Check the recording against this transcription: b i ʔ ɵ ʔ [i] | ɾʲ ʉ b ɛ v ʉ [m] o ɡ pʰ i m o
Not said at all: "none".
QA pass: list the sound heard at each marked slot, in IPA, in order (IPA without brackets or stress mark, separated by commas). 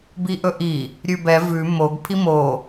i, m